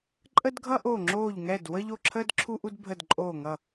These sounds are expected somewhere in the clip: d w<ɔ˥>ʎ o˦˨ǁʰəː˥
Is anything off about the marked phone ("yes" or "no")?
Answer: yes